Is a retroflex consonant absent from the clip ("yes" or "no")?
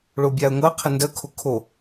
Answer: no